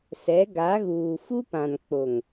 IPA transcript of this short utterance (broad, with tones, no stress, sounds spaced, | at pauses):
s ɛ˨˦ ɡ a˨˦ ɣ uː˨ f u˦ p ã˨ n k͡p o˨ ŋ